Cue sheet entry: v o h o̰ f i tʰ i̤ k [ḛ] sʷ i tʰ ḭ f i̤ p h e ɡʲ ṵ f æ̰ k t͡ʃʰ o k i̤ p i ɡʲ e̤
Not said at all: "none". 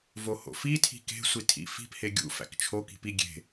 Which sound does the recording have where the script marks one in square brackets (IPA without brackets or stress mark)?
e̤